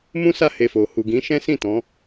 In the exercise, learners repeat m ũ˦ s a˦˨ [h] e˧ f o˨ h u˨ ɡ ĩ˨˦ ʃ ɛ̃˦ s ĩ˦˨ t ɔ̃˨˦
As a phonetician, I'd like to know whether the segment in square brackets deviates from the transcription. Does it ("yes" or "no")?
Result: no